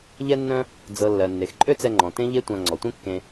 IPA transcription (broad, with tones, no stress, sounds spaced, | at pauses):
ʎ ɛ˦ nː œ̃˦ | d͡z ɤ˨ lː ɜ˨ nː e˨ x ǃʼ ø˦ t͡s ɛ˧ ŋ͡ǃ ɔ̃˨ t ẽ˦ ʎ e˦ tʷ ã˧ ŋ͡ǀ ɔ˨ tʷ ẽ˦ kː ẽ˧